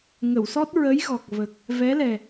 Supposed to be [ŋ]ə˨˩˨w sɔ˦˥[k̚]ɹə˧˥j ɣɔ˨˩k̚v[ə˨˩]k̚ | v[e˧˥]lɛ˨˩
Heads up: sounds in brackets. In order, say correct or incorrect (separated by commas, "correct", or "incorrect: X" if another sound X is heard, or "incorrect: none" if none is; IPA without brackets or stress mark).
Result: correct, incorrect: t̚, correct, incorrect: ɛ˧˥